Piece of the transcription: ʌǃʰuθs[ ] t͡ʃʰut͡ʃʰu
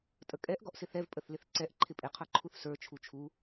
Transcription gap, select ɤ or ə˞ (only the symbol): ə˞